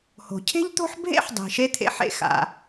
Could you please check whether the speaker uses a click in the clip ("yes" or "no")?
no